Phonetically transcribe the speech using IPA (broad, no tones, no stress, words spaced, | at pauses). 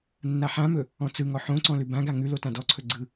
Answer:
nːaħãmɵ | ɔ̃t͡sɯŋɔ ħõǀɔ̃ lʉbãɡa ŋʉ lotãdɔǀʰɵ ɡ͡ǀɯ